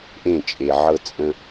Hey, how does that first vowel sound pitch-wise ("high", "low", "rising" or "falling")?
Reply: falling